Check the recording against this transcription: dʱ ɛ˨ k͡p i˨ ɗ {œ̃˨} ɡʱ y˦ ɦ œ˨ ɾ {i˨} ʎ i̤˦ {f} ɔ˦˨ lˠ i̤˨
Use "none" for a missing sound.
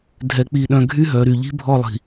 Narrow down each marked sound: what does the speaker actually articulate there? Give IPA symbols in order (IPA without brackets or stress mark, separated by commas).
œ̃˨, y˨, bʱ